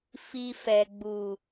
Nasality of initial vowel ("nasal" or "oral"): oral